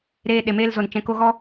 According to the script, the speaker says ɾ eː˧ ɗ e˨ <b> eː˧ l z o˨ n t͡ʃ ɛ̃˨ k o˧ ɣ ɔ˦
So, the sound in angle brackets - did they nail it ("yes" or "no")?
no